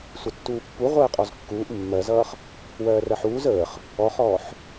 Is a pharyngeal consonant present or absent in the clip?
present